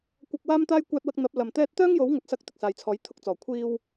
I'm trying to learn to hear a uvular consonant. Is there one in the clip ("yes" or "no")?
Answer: no